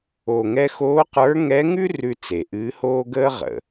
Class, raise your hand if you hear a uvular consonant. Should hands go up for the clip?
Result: yes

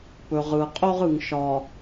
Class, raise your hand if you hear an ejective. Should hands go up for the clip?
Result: yes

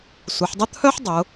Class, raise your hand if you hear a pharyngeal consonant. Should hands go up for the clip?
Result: yes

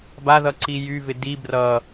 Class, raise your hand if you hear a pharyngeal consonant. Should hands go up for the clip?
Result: no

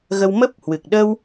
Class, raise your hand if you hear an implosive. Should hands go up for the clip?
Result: yes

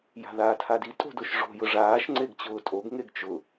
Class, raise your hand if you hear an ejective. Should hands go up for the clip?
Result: yes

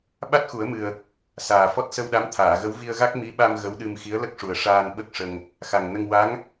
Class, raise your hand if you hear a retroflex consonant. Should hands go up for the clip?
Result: yes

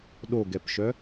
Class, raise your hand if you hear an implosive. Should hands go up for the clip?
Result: yes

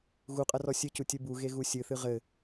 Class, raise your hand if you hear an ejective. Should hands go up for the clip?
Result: yes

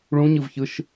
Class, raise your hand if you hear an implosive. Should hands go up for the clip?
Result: no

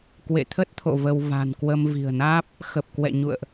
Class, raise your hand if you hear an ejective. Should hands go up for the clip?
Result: no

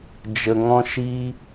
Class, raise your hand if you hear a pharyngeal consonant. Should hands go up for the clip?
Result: no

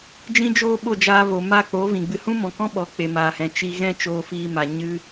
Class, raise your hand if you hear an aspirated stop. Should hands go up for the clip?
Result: no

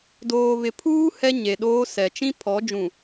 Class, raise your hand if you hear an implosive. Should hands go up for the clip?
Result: yes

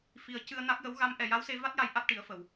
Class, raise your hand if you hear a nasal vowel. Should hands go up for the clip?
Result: no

